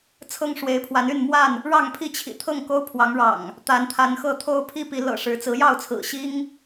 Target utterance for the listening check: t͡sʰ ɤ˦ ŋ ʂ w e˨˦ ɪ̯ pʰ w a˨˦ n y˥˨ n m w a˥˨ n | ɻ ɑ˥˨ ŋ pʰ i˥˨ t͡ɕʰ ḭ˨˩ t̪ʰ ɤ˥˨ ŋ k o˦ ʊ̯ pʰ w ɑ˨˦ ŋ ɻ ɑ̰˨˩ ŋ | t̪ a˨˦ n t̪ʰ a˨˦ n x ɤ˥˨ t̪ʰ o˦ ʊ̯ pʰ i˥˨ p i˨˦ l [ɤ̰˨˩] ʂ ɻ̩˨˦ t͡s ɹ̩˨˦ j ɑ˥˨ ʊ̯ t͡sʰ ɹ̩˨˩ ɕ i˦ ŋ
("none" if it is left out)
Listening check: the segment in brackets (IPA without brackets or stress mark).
ɤ̰˨˩